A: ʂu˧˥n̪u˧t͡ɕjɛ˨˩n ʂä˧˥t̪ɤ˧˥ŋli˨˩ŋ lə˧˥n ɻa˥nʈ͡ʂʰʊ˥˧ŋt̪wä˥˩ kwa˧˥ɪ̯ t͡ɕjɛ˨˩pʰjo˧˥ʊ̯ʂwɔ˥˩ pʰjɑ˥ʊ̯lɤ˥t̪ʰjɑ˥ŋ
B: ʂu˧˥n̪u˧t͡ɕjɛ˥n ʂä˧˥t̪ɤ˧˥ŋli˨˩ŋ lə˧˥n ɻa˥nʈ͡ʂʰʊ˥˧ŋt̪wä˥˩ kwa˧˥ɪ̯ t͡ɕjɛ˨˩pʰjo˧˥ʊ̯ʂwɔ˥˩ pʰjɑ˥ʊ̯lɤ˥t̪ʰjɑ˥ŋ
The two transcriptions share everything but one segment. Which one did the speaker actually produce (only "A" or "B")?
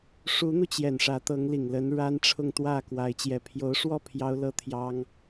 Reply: A